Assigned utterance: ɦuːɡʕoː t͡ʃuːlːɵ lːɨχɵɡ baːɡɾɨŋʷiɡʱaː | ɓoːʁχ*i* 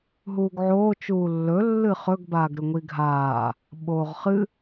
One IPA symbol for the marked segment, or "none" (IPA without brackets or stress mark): ɨ